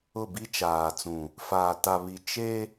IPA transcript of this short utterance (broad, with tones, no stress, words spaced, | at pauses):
ʊ˦˨bi˦t͡ʃaː˨t͡sũ˨ | faː˨ ta˨βi˨ t͡ʃe˦